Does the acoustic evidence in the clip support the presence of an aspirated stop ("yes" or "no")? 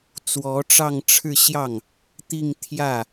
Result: yes